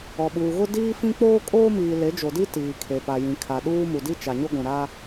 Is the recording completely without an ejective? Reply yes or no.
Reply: no